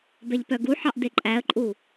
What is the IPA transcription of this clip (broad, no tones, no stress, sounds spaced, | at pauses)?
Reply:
b ɛ ʎ p œ ɡ u ħ ɑ ʔ d e ǃʼ æ ə̯ ǃʼ u